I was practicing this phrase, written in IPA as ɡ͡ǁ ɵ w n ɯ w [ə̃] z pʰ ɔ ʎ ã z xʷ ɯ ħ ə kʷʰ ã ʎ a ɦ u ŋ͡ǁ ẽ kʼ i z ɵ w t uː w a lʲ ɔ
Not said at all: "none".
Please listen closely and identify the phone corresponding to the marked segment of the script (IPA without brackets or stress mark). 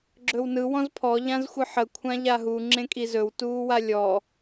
ɔ̃